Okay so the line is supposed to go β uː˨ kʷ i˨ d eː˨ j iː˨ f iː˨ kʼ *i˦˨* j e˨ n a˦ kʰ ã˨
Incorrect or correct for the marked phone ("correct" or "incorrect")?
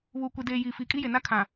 incorrect